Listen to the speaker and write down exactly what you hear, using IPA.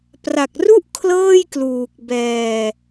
pra˨˩k̚ru˥˩ʔ kʰlɤː˥˩jkluː˨˩k̚ bɛː˧

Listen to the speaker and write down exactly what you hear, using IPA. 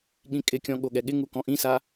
ɠĩkʼɪkʲɔ̃ ɠoɠɛɠɪŋu kɔ̃ʔĩsa

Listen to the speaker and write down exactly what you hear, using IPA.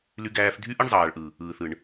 ly˧ɡæː˧f dʱy˦ʔɯ˦ɳzˤɑː˨ɭʔɯ˨ | ɯː˨θɯ˨ɳ

